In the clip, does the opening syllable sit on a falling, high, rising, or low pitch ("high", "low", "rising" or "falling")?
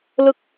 falling